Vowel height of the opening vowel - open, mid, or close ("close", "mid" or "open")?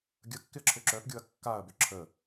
mid